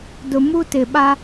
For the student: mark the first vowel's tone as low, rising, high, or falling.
low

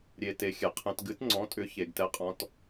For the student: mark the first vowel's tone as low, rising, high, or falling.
low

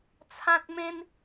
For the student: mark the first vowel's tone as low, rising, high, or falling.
high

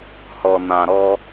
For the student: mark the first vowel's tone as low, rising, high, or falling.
low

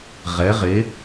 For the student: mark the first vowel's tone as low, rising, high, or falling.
rising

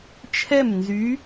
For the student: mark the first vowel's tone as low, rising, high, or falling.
falling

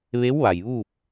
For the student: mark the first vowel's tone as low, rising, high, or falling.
rising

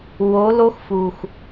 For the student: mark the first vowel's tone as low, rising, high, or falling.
rising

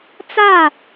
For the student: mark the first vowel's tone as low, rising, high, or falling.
falling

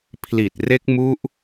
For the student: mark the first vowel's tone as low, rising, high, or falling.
low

